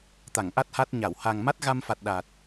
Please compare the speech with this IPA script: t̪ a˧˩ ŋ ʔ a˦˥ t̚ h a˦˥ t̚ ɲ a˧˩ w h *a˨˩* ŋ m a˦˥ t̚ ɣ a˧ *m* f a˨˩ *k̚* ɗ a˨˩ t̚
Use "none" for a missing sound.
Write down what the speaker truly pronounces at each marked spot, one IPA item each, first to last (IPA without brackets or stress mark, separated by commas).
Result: a˨˩, m, t̚